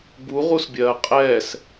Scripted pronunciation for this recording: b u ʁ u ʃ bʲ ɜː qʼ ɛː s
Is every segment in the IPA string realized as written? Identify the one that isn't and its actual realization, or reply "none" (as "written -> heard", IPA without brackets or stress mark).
ʃ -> s